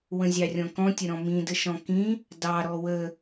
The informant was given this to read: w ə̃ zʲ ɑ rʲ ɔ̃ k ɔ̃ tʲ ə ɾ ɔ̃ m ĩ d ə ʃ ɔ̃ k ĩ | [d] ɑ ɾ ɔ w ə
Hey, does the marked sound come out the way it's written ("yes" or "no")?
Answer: yes